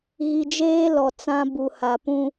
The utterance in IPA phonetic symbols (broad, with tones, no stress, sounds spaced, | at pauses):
ɣ i˨ d͡ʒ eː˦ l ɔ˨ t͡s ã˦ b u˨ h a˨ p ũ˦